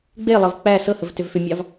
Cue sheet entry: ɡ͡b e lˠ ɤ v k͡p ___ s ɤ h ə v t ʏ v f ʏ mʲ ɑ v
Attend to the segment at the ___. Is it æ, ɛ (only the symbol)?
æ